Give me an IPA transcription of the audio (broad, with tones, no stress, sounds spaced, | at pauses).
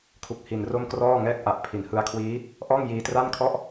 kʰ u˦˥ k̚ h i˧ n r o˥˩ m k r ɔː˥˩ ŋ ɛː˥˩ k̚ ʔ a˨˩ ʔ pʰ i˨˩ n h ɯ˧ a̯ kʰ w iː˦˥ | ʔ ɔː˥˩ ŋ j iː˧ t r a˥˩ n kʰ ɔ˥˩ ʔ